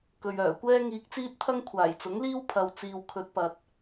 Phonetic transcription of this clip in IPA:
kɵ˧ɥœː˨˩ kʷɛː˥ŋiː˧k̚t͡siː˥t̚t̪ʰɐ˥ŋ kʷʰaː˨˩jt͡sʊ˨˥ŋliː˥w pʰɐ˨wt͡siː˨w kʰɵ˨˥t̚pɐ˨t̚

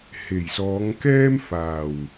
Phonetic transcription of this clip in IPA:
he˨˩jsɔː˨˧ŋ kɛː˥m faː˨˩w

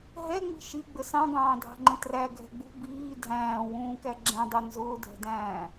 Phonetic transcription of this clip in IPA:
ɦɛŋ͡mi̤ ʃiɡ͡bə sɑ̃ɡɑ̃ːdʱɑ̤ŋ͡ǃə̃ træɡʱɛ̤ ɡ͡bṳ biː dʱæ̃ːwũːkæ ɡ͡ǁɛ̃dˤu nzʊːdʱɛ̤dæ̃ː

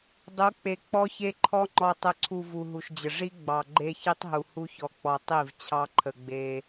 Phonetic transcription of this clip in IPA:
dˤu˨˦ k͡pe˨ k͡pɔ˦çe˦ǃʰɔ˦ ŋ͡ǃɔ˨tˤə˨ǀʰu˨ vu˨ɦu˨ʃd͡ʑə˨ ʐi˦ ɡ͡bɑ˨ ɡ͡ǃe˦çi˦tˤɦu˨hu˦ çɔ˨k͡pɔ˨ tˤi˦˨v t͡ɕʰɑ˦ǃʰə˨ɡ͡be˦

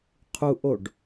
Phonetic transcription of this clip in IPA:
qʰuʔoɖ

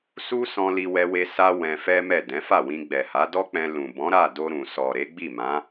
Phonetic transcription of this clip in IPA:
su˦sɔ̃˧ li˧wɛ˧we˧ sa˦ wɛ̃˧fɛ˦mɛ˦˨ dɛ̃˨˦fa˦˨wĩ˧ ɡ͡bɛ˨ha˨˦dɔ˦k͡pɛ̃˧ lũ˨ bɔ̃˨˦ɾa˦˨ do˧ ɾũ˨sɔ˨ ɾe˨˦ɡ͡bi˦˨mã˨˦

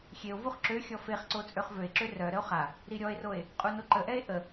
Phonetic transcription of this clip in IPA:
xʲeo̯vuχ ǁøxʲɔ feχǀo t͡sʼøχvøe̯ǁø rœɾəo̯ χa | ɾiɾʲɔe̯roe̯ | qʼunoǃəʔɛe̯ ʔə

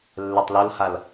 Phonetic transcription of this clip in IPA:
lːɛtˤlolhal

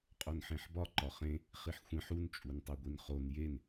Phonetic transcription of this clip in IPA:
qʼonħẽħbɒ ǃɒχẽ | χiħxʷẽħ un t͡ʃʼuntˤiɡʷinχon jen

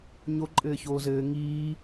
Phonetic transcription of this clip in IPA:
ɲo ǃʼɘːçoːzɘː ŋiː

